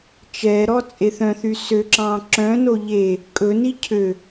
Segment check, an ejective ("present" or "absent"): present